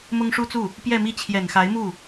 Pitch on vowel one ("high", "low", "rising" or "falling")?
high